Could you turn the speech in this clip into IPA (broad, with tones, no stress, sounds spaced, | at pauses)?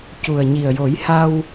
c u˨˩ ə̯ ɲ i˨˩ ə̯ j o˨˩˦ j h a˧ w